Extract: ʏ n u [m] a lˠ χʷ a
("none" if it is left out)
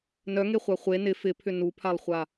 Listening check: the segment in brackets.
pʰ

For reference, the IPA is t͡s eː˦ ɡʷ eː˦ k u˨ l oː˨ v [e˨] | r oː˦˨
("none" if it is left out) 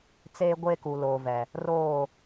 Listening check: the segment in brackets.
ɛ˨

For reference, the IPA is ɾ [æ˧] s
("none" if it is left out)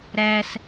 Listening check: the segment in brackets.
æ˧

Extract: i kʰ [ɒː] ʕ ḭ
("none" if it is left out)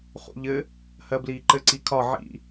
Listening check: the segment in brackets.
ɒ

